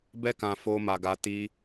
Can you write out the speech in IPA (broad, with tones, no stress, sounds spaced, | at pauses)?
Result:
b ɛ˦ k ã˧ f o˧ m a˧ ɡ a˧ t i˧